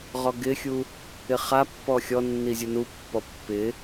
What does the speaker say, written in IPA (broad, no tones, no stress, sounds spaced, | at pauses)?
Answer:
ʁ ɔ ɡ ɪ xʲ u | ɪ χ a pː ɔ xʲ ɔ nː i zʲ u n u pː ɔ pː ɪ